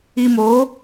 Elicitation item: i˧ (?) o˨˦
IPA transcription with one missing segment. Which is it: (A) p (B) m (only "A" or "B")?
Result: B